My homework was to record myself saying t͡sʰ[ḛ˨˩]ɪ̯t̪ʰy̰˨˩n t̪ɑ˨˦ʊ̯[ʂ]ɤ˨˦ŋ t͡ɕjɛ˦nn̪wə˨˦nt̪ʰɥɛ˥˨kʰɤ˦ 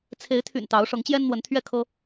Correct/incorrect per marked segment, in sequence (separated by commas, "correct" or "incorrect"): incorrect, correct